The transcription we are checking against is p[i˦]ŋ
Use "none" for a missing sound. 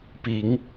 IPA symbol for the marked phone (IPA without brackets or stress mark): i˨˦